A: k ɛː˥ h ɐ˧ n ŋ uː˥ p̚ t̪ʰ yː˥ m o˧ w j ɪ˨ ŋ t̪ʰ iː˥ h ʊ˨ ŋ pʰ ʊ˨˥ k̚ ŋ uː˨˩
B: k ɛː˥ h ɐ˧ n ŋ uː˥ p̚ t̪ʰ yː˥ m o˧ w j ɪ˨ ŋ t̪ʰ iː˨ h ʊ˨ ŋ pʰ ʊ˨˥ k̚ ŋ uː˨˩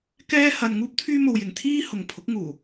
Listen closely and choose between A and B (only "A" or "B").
A